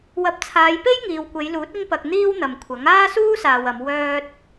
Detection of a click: absent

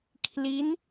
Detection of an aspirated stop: present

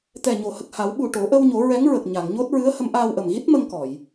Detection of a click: absent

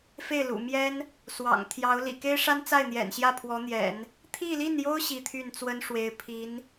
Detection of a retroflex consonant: present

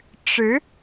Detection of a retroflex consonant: present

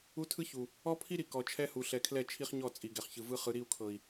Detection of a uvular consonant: present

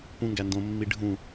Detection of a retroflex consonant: present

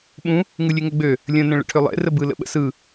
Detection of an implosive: present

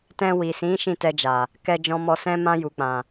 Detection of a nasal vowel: present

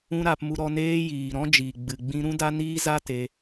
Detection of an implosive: absent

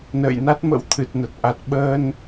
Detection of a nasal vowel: absent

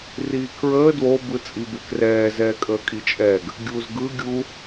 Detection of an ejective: present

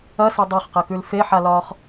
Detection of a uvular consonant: present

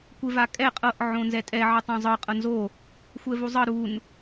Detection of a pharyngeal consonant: present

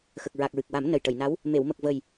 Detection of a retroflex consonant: present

